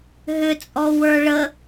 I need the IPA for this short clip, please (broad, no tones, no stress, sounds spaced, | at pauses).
ɦ ʏ t͡sʼ ɔ w ə˞ ɭ ə